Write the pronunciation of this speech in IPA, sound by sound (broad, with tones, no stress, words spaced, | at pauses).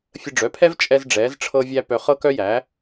fʲə˧ɖ͡ʐœ˩˥pʰɛ˥v t͡ʃʼɛ˧zɖ͡ʐɛː˩˧zʈ͡ʂʰɤ˧vʲæ˧ pœ˧ χɤ˥kœ˥jæ˩˥